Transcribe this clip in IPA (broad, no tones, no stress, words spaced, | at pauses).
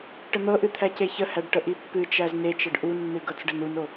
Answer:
ʈən̪ɤʔɨ t̪ʰæceçəhæɖ ʈəʔipːɨt͡ʃæz net͡ʃəɖ ʔunːɨ ɡɤt͡sɖənuno